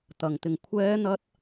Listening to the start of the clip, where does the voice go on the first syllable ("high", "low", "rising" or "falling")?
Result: low